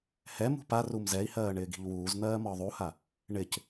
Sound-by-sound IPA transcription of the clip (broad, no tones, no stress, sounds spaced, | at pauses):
h ɛ m ṳ p a r u m z ɛ i̯ h ɜː ɳ ɪː ɡ i̤ ʎ w uː z n̪ ɜː m ɒ ðˤ u h a | ɳ ɪ c